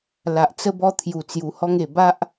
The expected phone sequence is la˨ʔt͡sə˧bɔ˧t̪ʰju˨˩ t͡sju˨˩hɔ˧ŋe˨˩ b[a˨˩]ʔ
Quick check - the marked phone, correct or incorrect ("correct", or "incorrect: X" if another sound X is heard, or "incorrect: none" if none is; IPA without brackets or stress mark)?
incorrect: a˦